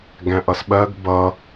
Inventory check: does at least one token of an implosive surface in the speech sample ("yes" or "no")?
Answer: yes